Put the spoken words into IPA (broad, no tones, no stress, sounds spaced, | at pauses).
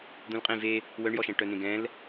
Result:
d̪ ũ l qʼ ẽ v e | w œ ɳ j ɔ ʃ ɛ̃ ʈ œ n ẽ ɡ ɛ̃ l